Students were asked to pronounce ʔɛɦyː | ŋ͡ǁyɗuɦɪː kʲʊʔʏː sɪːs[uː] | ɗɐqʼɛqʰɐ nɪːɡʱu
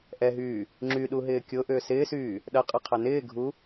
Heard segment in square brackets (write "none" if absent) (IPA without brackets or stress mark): yː